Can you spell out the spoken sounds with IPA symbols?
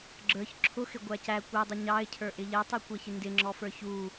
ɡ͡ǁ ə˞ ç ǁʰ ʊ x ɪ ɡʷ æ c æ kʷ ɛ dˤ ʌ ɲ ɑ ɪ̯ cʰ ə˞ ʔ ɪ ʎ ɛ tˤ i kʷ ɛ ç ɪ n d ɪ ŋ͡ǁ ɔ f ə˞ ç u

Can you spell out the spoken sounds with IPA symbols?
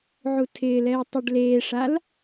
ʕ u tʰ ɪː l ɛ ɪ̯ tˤ ɪː ɖ l eː ʂ a l

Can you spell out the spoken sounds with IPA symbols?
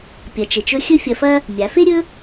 pʲ ɐ˩˧ t͡ʃ e˩ t͡ʃ ɵ˧˥ xʲ ɵ˥ fʲ ɐ˧ f ɐ˥ | mʲ a˩˧ f e˥ ɾʲ ɵ˥

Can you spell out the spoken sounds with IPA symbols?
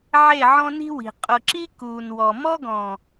ʕ e˦˨ ʕ ɔ̃˦ n i̤˦ w i̤˨ qʼ ʊ˨ ǁ i˦ k uː˨ n w ɔ˨ m ɔ˦ ɡ ɔ̃˨

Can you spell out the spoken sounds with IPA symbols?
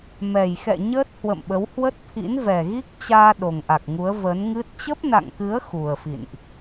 m ɛ˨˩ j x ɛ̰˧˨ ɲ əː˦˥ t̚ h w ə̰˧˨ m ɓ ə˨˦ w h w ə˦˥ t̚ t̪ʰ ḭ˧˥ n v ɛ˨˩ ɣ i˦˥ k̚ t͡ɕ aː˧ ɗ o˨˩ ŋ ʔ a˨˩ k̚ ŋ u˨˦ ə̯ v ə˨˦ n ŋ ɨ˦˥ t̚ t͡ɕ ə˦˥ p̚ n a̰˧˨ ŋ k ɨ˨˦ ə̯ x u˨˩ ə̯ f ḭ˧˨ n ʔ

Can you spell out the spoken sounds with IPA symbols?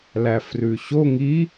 l æ f r ʉ ɕ o ŋ i

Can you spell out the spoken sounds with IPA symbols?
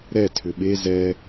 ɾ ɛ tʰ ʏ ɓ e z ɛ

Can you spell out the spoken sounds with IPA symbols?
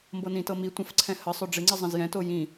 m b ɤ n ĩ t ɤ m i tʷ ə̃ f ǀʰ ɛ̃ h ə sˤ ø ɖ͡ʐ ɪ ŋ͡ǀ i zˤ ə̃ z j ɛ̃ t o j ĩ

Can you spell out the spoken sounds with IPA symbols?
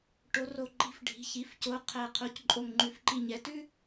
ʈ o˨˦ r o˧˩ ǃ i̤˨˦ f ɖʱ i̤˩˧˩ ç i˩˧˩ f c o˩˧˩ qʰ æ˧˩ qʰ o˨˦ c ǃʼ o˧˩ ŋ ŋ͡ǃ ʉ˨˦ f ǃ i˧˩ ɲ ɛ˨˦ t ʉ˥

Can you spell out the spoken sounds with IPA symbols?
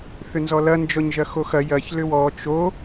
θ ʏ n z ɔ l ɐ n d͡ʒ ɔ ɲ ʒ ɐ x o x ɐ j ɐ ç l ʏ w ɔ t͡ʃ o

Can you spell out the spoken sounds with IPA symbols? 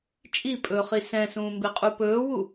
t͡ʃʼ i pʼ ɵː χ i s ɛ̃ s ũː m b e qʼ u p ɵː w u

